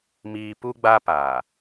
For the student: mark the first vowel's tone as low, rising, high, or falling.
low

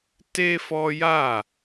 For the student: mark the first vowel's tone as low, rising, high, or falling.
high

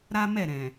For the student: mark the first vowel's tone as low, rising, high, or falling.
high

